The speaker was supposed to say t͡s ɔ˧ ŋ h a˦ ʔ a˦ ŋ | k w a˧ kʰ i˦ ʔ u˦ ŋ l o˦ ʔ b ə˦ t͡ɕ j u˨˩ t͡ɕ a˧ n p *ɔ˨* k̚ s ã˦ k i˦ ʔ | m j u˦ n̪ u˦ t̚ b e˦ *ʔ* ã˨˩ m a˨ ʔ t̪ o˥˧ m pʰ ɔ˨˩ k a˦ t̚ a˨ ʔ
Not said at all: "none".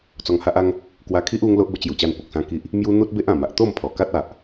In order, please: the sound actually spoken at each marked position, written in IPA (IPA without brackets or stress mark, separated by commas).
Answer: o˨, ʔ